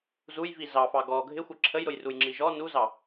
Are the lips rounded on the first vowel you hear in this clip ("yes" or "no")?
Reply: yes